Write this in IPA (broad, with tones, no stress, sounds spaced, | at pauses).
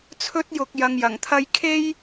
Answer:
t͡sʰ ɵ˥ t̚ j ʊ˧ k̚ j ɐ˧ ŋ j ɐ˨˩ ŋ t̪ʰ ɐ˥ j kʰ e˥ j